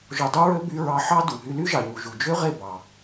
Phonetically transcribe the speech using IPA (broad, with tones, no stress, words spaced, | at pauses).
ʒo˧dˤu˦ɹø˦ by˧ ɹɑ˧ħɑ˦du˨ ɦy˧ly˦ʒɑ˨ɲu˨ ʒu˨d͡ʒø˦ʁe˦˨ bɑ˨